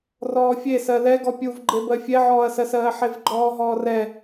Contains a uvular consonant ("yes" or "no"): no